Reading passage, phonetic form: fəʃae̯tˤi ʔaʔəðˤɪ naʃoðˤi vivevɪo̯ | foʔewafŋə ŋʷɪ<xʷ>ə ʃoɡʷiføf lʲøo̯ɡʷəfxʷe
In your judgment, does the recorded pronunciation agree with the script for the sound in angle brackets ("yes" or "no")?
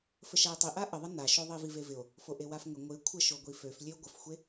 no